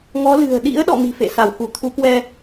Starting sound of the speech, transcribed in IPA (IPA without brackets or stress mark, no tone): ŋ